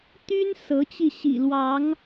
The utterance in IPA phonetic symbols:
t̪y˦n sɤ˨˦t͡ɕi˧ɕḭ˨˩ lwɑ˨˦ŋ

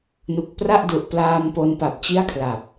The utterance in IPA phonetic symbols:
nu˨˩k̚pra˥˩ʔdu˨˩ʔ plaː˧m po˧npa˨˩p̚t͡ɕi˥˩a̯kʰla˨˩p̚

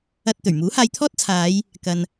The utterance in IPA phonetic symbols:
ɐ˧t̚ t̪ɵ˨˩ɥmuː˨˥haː˧jt̪ʰɔː˥t̚ t͡sʰaː˨˧j | kɐ˨n

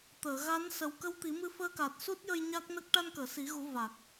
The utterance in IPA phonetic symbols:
t̪əː˨˩˨ɣa˧˥n sə˨˩wkə˧w t̪i˨˩˦mɨ˧ fəː˧ka˨˩t̚su˦˥t̚jə˧j ɲa˦˥k̚nə˦˥k̚ ʈa˧nkəː˨˩˨si˨˩˦ɣu˨˩˦ va˨˩k̚

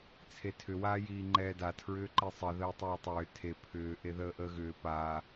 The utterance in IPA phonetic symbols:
t͡sʰetʰʏ waːjiːŋ͡ǃɛːda tʰɹʏːǃisˤə ðəːtˤɛːtˤʏː tʰe pʰʏː ʔeðəːʔəːɣʏː paː

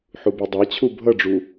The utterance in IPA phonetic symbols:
ħubudˤɑt͡ɕʰu bʱʌɖ͡ʐu

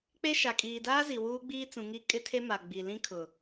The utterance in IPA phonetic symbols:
k͡pe˦ʃa˨ kʼiː˨daː˦zi˨ wuː˦ɡ͡biː˦ t͡sũ˨ ŋi˦ kʼɪ˦tʰe˦ ma˨ɡ͡bi˨lĩ˦ kʰʊ˨

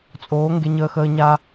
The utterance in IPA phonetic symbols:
t͡sʼoː˨˦ ŋɡe˧ɲəː˧xəː˧ ɲa˧

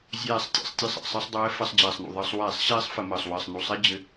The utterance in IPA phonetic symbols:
zʲɛː˦˨sˤtʲɛ̰˦˨sˤtʲɘ˦˨sˤ ɛ̰˨˩sˤɘ˧˩˧sˤdˤɛː˨˦ fə˧˩˧sˤd͡ʑɛː˨˩sˤnṵ˨˩ ðˤəː˧˩˧sˤ wɛː˧˩˧sˤɕɛː˦˥sˤ fə˧˩˧məː˨˩sˤ wɘː˨˩sˤnu˨˩sˤɛ˦˥ d͡ʑɘ˨˦

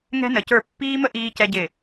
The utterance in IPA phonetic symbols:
ŋɛ̤˦nə˨˦cə˞˦˨ pːiː˦mə˦ ʔiː˦cɛ˦ɟɪ˦˨

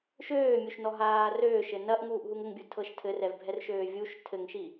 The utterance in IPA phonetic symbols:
ʃøːmʲuʃnɔɦaː røːʃɘ nɐʔŋuːʔɦuŋ ɘŋbʲutʰɤʃ tʰɘrɛvbʱɛrʃøː vʲuʃ tʰɘŋʃi

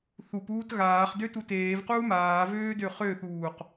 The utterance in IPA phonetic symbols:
θupuːt ɣaːχdø tuteːvquː maːvøː døχøθuːq

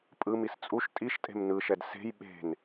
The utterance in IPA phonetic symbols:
pʼɯmis t͡sʼuʃ tʼiʃtʼe̤m nɯʃɛd se̤j ɓe̤n

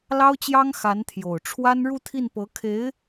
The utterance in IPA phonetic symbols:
lɑ˥ʊ̯t͡ɕjɑ˥ŋ xa˧˥nt̪ʰjo˨˩ʊ̯ ʈ͡ʂʰwa˥n ɻu˥˧ t̪ʰi˥˩npɤ˧˥kʰe˧˥ɪ̯

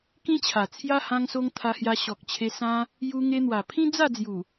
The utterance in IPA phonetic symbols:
kĩ˦t͡ɕʰa˨˩t͡sʰja˦ hã˧ŋso˧ŋ t̪ʰa˧hja˧ɕɔ˨k̚t͡ɕʰe˧ sã˦ | ju˧ ŋe˧n̪wa˨˩pʰĩ˦ d͡za˥˧d͡zju˨˩

